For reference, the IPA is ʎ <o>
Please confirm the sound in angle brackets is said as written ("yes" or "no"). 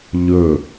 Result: no